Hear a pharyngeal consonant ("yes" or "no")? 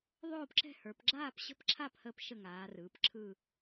no